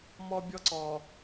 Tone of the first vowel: high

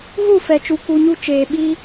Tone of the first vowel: falling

